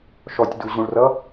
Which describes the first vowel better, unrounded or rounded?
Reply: rounded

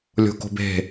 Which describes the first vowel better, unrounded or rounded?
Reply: rounded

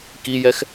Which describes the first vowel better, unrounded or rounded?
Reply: unrounded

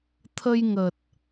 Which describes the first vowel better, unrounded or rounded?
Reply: unrounded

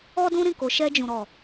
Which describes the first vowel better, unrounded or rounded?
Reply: rounded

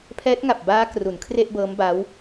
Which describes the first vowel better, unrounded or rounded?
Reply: unrounded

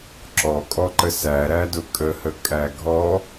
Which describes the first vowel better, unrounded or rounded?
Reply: rounded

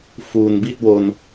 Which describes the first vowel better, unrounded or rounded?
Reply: rounded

